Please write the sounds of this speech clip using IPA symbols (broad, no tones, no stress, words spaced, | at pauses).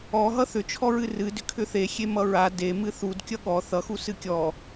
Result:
ɔɦʌ θʏt͡ʃʰɔ ɹɨrɨ dʏkʰʏθe xʲemʌɹa demɨ θud kʲʌɠɔ θʌxu sɨkʲɔ